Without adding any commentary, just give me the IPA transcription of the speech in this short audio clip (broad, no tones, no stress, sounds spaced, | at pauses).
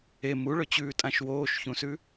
e m u ɭ ɵ t͡ɕ ʉː tʼ ã ʃ w oː ʃ ç ũ s ʉ